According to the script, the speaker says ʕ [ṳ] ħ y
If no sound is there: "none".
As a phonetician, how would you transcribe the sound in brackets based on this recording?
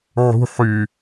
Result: ṳ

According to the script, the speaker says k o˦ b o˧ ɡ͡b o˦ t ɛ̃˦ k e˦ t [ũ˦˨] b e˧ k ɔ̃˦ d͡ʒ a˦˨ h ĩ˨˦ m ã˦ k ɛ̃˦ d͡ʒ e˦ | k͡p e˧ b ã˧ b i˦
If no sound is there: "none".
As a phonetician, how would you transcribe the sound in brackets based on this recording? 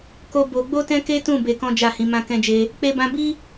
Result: ũ˦˨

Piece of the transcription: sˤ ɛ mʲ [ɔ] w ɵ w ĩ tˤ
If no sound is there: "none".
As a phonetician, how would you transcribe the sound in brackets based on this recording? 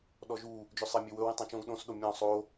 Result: ɵ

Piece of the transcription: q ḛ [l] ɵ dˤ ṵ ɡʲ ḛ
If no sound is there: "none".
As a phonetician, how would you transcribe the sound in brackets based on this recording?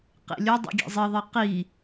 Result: lʲ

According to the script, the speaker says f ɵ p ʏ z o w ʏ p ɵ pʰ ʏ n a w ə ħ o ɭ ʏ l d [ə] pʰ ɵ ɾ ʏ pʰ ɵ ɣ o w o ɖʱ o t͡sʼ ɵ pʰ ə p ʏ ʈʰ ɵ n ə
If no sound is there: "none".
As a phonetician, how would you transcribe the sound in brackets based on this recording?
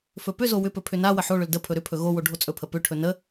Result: ə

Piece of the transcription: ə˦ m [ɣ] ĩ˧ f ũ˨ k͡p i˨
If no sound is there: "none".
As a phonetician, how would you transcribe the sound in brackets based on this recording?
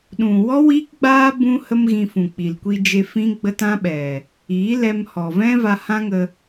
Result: ɣ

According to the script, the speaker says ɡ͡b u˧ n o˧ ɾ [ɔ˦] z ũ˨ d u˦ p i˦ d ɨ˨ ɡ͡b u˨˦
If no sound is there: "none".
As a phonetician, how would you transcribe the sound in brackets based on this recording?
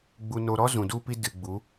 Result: ɔ˦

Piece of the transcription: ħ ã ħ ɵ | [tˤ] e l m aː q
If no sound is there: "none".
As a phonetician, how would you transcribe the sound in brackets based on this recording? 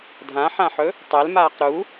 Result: tˤ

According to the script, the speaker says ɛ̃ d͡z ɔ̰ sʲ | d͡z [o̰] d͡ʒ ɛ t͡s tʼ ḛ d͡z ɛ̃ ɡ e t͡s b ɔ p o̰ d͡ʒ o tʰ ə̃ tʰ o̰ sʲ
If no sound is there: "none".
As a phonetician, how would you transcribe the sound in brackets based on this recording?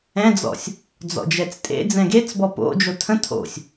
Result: ɔ̰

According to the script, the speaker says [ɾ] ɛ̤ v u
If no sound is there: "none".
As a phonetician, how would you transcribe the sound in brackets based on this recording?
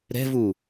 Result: ɾ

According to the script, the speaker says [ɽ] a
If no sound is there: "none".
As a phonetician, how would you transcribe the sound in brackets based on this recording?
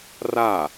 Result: r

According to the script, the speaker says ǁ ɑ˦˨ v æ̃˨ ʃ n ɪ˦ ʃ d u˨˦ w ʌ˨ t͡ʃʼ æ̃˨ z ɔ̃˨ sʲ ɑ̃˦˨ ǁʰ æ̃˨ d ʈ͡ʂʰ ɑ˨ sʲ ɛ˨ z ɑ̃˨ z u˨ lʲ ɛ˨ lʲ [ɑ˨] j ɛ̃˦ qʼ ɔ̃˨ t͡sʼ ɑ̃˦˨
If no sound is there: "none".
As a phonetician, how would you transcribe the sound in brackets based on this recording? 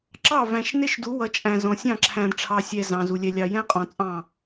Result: ɑ˨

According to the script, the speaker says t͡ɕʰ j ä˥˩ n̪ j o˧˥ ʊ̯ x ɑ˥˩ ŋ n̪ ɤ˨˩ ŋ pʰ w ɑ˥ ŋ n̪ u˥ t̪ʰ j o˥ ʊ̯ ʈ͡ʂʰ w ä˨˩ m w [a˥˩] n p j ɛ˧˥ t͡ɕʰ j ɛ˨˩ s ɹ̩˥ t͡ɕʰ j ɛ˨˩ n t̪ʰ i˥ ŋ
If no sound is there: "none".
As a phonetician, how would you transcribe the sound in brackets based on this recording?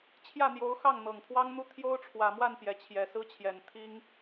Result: a˥˩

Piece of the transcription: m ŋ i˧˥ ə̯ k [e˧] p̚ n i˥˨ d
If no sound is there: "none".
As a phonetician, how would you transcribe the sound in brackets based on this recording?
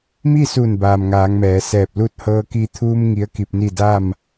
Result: i˧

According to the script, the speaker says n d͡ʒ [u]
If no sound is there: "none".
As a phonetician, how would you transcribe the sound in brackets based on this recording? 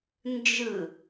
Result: ɯ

